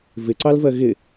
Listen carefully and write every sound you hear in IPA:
vɪǀɑlvɜ ɣɪ

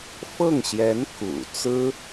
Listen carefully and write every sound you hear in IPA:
fɤ˥˩ŋɕjɛ˧˥n kṵ˨˩ t͡sɹ̩˥

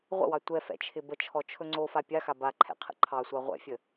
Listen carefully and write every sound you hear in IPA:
ʁʷə̰wɑ tʷɛfɛ̰t͡ʃʰɪ bət͡ʃʰɔt͡ʃʰɵ ŋ͡ǀofa pʲaxa baǃʰɛ̰qʰə̰ ǃʰɑsʷɑ ʁʷɛ̰fʲə

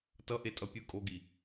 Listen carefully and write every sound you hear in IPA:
tʌʔetʼʌ pʲɯ kʼoɡi

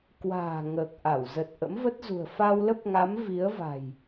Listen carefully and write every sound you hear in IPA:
kwa̤ː˨˩ ŋəː˨˩k̚ʔa˧˩w zə˨˩t̚ʔə̰˧˥mvə˦˥t̚zṳ˨˩ə̯ fa˧wlə˦˥p̚ŋa˨˦m vi˨˦ə̯va̤˨˩j

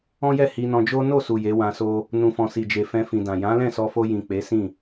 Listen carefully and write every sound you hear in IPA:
ɔ̃˦jɛ˦˨ hi˧nɔ̃˧d͡ʒo˦ no˦˨su˨ je˨˦wã˧so˦ | nũ˨fɔ̃˨ si˨d͡ʒe˨ fɛ̃˧fĩ˨ dã˨ jã˨˦lɛ̃˦˨sɔ˧fo˧ jĩ˨k͡pe˨˦sĩ˦˨

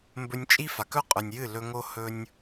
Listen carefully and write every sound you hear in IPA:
mbɵ˧nʲt͡ʃʼi˦fa˨kɵ˦ qʼʉ˨nʲjɨ˦˨lɵ˧ŋo˦ hɵ˦nʲ

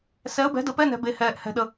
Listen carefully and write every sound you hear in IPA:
sɛ˨˥ə̯bɛ̤˨˥də˨˥ pɛ˧˥˧nɛ̤˨ be˨hɛː˨ʔ hɛ̤˨ɗə˨

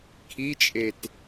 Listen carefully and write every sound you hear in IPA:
kʰit͡ʃʼet

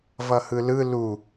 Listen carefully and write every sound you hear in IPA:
vʌhɯlɯ lu

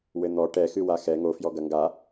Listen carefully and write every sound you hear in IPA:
wɘn̪ɔ ʈɛ xɨwaxɛ ŋofjɔ ɡɐŋɡa

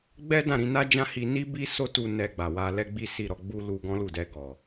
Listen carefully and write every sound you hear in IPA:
ɡ͡bɛ˦dã˦˨ɾĩ˧na˦ d͡ʒã˦hi˧ ni˦bi˦ so˦tu˧ nɛ˧ɡ͡ba˨wa˧ lɛ˦ɡ͡bi˦si˦˨ɾɔ˨˦ ɡ͡bu˦ lu˧ɡɔ̃˦lu˦˨dɛ˧ ɡɔ˨

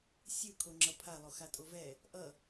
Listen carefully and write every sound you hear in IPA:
sʲɯ kʰoŋ͡ǁʌpʰa lˠoxatʼovɛ | ʔʌ

